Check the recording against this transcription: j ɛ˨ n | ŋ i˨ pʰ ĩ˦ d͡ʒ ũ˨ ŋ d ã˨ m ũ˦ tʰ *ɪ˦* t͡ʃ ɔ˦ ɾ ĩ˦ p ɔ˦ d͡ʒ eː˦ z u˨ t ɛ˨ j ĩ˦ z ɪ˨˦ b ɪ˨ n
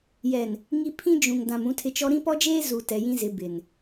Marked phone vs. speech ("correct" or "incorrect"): correct